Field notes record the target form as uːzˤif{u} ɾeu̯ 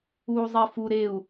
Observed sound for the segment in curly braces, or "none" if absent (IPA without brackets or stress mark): u